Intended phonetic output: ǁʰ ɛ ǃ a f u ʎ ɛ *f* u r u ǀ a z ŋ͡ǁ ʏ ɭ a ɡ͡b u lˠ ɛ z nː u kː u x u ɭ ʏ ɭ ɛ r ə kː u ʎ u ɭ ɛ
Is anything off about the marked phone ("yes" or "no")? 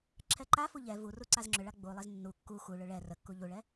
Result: yes